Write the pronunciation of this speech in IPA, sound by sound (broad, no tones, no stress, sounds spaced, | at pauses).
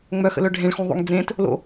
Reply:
ŋ͡m œ x ə̰ l œ ɖʱ ẽ ɭ x ũ ðˤ o̰ ŋ d͡z ẽ t | l o̰